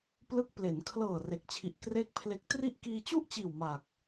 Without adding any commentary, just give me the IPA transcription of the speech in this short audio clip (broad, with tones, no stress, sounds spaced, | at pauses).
p l ɯ˦˥ k̚ p l e˩˦ n kʰ l ɤː˨˩ r e˨˩ k̚ t͡ɕʰ i˨˩ ʔ k r eː˥˩ k̚ pʰ l e˦˥ k̚ t r i˥˩ ʔ k iː˧ t͡ɕ u˥˩ ʔ t͡ɕ iː˨˩ w m aː˨˩ k̚